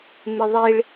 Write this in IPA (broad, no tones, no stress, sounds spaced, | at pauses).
m ɪ ðˤ i ɭ